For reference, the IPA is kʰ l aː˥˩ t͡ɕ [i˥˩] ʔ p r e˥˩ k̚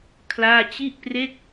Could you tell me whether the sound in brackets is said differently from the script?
no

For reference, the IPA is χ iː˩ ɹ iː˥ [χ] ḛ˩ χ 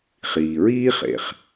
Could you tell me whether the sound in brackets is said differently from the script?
no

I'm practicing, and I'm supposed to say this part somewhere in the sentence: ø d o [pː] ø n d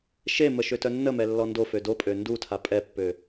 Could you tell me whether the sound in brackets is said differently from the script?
yes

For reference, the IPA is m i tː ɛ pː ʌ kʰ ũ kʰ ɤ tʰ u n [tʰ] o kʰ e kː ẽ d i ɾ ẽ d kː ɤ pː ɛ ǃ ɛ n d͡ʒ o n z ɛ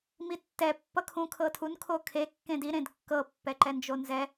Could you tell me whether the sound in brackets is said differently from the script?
yes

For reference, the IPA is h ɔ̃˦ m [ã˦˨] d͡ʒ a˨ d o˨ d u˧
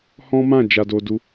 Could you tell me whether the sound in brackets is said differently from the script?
no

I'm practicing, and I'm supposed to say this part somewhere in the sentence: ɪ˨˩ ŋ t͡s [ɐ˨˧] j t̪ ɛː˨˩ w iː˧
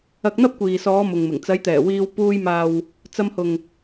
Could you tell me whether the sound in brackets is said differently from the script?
no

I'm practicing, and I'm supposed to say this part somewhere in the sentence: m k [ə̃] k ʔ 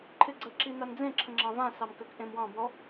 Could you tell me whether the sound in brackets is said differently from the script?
yes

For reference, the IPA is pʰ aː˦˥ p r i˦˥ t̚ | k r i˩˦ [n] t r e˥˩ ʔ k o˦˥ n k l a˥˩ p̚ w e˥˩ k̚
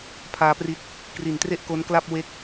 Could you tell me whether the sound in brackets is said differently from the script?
no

